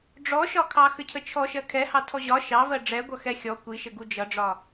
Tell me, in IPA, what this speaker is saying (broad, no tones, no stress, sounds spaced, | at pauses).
ɖ͡ʐ ɔ ʃ ɒ kʰ ɑ x ə cʰ ə t͡ʃʰ ɔ ʃ ɜ kʰ ɛ h ɑ tʰ ɔ ʑ ɒ ʃ ɑ v ɜ ɖ͡ʐ ɛ ɡʷ ʌ x ɛ xʲ ɔ kʷ i ʃ ə ɡ u d͡ʒ ʌ ɖ͡ʐ ɒ